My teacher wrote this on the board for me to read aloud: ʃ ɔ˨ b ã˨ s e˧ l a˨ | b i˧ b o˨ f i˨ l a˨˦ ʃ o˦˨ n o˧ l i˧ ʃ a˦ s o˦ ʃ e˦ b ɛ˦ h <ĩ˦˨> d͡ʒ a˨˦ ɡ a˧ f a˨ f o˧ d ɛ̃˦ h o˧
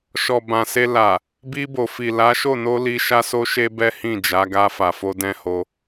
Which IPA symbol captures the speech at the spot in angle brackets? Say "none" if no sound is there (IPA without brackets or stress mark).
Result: ĩ˦˨